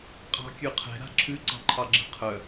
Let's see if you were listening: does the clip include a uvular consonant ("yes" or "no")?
yes